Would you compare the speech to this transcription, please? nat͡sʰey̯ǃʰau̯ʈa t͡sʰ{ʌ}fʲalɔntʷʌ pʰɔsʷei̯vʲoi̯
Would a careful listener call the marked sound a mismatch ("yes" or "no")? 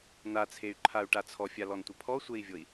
yes